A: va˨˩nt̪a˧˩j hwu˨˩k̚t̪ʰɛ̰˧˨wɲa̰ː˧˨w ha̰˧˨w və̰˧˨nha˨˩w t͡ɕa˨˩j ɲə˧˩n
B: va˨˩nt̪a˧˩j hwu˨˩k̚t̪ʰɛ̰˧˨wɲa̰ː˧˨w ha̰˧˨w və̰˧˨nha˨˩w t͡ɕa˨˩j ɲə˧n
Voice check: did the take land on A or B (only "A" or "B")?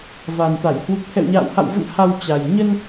B